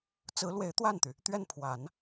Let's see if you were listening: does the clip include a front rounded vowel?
yes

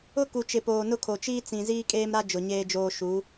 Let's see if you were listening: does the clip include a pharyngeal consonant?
no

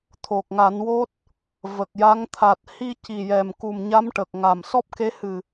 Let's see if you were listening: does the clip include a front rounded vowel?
no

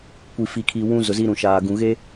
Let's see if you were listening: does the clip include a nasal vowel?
yes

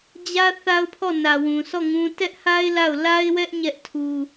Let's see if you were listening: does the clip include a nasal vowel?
yes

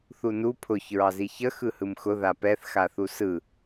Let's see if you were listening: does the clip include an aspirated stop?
yes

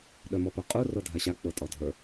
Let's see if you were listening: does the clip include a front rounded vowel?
yes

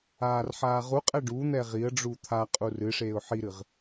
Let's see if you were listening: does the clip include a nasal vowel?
no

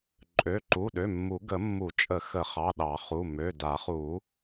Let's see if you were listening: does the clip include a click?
yes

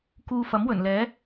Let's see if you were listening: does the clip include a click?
no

